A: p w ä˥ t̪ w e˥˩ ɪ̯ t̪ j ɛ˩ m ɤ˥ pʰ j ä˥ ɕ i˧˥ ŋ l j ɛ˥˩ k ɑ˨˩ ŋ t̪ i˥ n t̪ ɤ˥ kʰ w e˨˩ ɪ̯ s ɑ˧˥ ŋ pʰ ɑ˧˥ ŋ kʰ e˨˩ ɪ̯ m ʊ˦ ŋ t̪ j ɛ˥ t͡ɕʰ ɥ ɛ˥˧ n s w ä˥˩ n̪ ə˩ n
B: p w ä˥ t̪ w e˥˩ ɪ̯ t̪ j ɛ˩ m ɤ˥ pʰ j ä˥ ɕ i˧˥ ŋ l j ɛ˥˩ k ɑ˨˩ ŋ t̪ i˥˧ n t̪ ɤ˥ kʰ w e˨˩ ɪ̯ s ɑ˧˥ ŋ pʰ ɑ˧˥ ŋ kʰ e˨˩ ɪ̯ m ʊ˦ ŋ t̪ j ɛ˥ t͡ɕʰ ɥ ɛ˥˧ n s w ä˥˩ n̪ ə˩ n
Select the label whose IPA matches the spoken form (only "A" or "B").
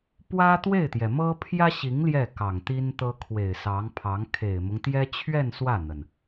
A